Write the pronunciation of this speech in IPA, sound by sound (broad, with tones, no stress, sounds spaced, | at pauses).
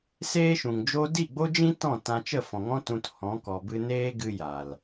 s eː˦ ʃ ũ˨ ŋ d͡ʒ o˦ d i˦˨ ɡ͡b o˦ d͡ʒ ĩ˦ t ɔ̃˦˨ t ã˧ t͡ʃ ə˦˨ f ɔ̃˨ ŋ ɔ̃˦ t ũ˧ t h ɔ̃˨˦ k ɔ˨ b ɨ˧ n eː˦ ɡ ɨ˧ j a˨ l